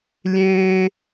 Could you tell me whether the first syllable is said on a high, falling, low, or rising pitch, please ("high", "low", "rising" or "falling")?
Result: high